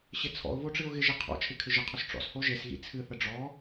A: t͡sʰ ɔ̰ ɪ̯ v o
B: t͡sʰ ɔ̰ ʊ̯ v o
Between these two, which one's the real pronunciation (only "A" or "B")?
B